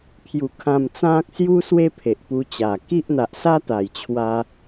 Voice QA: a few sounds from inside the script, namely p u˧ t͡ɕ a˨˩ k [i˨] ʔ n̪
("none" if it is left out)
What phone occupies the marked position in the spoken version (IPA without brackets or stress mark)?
i˦